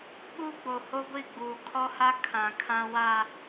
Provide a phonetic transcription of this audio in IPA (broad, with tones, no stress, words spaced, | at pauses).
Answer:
ɓuː˦ɡ͡bo˨ho˦ɡʷi˦˨ ɡ͡buː˨kʰɔ˦ha˦ kʰã˨ kʰã˨wa˨